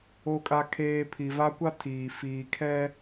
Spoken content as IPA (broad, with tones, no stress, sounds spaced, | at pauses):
o˨ kʼ a˨ kʰ eː˨ pʰ i˨ v a˦ kʷ a˦ tʰ iː˨ f iː˨ kʰ ɛ˦